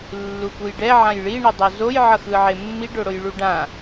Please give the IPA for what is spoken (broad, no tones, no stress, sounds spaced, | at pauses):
lː u k u j ɖ ɛ ʕ ã j ɭ i ɳ i dˤ o z o j ʕ ʌ x ɯ ʕ e mː i ɖ o ɽ o j ɭ u ɖ ã